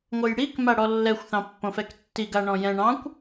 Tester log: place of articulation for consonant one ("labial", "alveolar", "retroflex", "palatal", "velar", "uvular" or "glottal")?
velar